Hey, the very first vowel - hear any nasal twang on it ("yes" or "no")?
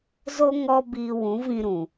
no